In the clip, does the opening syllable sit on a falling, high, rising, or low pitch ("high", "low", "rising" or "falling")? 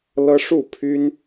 high